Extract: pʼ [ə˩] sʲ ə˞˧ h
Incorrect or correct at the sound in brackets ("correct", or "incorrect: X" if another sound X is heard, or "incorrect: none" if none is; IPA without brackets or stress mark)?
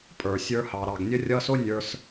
incorrect: ə˞˩